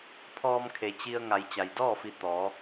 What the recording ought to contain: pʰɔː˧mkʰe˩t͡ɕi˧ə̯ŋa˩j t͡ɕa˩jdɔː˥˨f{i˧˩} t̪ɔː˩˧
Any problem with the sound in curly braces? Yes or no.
no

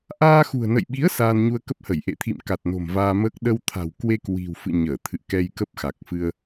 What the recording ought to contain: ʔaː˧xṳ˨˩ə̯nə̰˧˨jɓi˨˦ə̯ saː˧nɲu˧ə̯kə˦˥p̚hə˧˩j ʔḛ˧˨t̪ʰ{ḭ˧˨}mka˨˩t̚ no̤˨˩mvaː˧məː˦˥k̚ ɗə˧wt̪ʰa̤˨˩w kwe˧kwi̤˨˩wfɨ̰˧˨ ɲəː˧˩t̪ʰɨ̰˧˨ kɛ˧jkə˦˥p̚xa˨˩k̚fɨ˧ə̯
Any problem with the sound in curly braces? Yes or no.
no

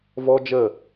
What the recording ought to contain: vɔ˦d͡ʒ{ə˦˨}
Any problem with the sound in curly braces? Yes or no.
no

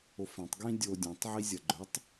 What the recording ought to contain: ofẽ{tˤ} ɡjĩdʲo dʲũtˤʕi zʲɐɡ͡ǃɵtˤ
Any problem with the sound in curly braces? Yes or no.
no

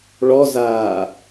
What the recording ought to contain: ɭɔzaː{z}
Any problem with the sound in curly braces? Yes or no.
yes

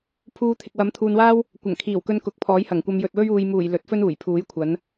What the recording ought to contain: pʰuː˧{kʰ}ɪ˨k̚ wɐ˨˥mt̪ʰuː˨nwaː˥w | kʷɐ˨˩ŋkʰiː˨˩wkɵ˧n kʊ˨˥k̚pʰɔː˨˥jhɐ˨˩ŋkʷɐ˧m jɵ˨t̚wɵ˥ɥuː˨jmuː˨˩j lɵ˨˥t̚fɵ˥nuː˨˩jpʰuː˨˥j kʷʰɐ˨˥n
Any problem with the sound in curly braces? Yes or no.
yes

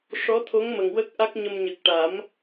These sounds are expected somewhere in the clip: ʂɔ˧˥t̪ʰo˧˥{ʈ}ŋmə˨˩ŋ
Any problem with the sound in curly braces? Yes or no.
yes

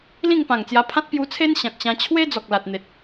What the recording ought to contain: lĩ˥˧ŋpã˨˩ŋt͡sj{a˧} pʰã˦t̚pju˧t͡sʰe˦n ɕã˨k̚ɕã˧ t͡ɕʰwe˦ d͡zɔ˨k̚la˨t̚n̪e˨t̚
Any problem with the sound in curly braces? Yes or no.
no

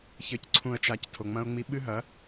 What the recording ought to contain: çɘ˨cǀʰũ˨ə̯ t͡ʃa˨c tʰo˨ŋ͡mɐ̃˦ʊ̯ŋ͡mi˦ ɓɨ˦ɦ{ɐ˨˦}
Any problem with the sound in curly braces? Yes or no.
no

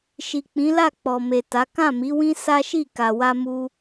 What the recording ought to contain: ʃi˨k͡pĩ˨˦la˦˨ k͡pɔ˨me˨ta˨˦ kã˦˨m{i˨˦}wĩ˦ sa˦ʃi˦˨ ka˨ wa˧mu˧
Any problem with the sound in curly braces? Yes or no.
no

